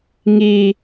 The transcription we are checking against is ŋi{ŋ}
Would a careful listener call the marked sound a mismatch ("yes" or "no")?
yes